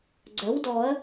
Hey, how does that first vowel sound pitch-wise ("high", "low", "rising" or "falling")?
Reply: rising